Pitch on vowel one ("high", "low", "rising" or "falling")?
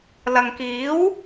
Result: low